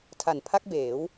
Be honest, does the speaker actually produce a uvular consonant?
no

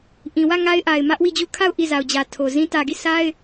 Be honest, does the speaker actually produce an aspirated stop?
yes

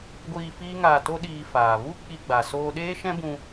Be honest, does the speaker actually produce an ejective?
no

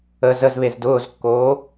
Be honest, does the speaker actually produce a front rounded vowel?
no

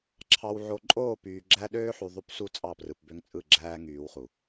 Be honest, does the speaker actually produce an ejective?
yes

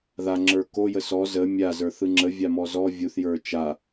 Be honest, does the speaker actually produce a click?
yes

